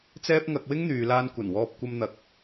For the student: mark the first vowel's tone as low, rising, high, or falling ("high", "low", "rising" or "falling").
high